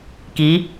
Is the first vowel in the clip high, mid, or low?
high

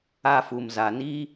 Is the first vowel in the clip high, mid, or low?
low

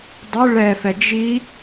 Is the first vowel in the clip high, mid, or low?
high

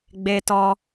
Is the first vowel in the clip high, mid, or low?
mid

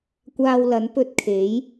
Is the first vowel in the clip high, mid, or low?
low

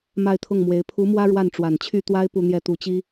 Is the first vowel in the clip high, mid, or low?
low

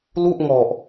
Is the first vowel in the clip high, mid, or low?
high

